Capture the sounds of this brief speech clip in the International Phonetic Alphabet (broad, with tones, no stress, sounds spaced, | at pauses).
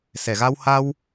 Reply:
s ɛ˨˩ ɣ a˧ w h a˧ w